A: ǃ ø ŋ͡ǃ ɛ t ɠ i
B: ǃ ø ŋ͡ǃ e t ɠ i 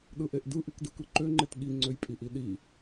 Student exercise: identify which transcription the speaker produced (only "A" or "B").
B